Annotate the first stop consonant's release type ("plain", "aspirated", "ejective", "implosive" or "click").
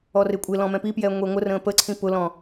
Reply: ejective